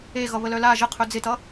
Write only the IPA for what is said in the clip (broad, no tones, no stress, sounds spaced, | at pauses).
e ɣ ʌ β ə l œ l a ʒ ə qʰ ɵ d͡z ɪ t ʌ